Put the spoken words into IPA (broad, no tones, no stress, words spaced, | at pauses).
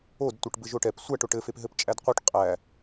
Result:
odtʷɯʈ bɘʒoʈɛp sʷæʈ oʈɘfep ɦɘpt͡ʃʼædqʷœʈ qʼæ